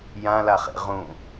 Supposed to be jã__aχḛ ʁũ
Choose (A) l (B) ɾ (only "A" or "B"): A